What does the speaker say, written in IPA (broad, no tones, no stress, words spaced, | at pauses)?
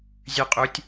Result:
zʲʉqʼutʲ